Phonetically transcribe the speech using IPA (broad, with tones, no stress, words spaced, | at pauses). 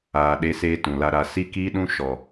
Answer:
aː˨ɗe˧seː˧ tũ˨la˧ɾa˧ si˧kiː˧ɗũ˧ ʃɔ˨